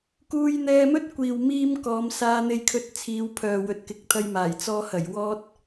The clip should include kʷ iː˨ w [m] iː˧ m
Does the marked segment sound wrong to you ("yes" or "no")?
no